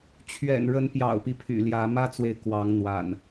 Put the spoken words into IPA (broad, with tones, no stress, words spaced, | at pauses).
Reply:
t͡ɕʰɥɛ̰˨˩nɻə˨˦n pjɑ̰˨˩ʊ̯pi˦ pʰy̰˨˩ljä˨˦ mä˦t͡swe˨ɪ̯ kwɑ˨˦ŋn̪wa̰˨˩n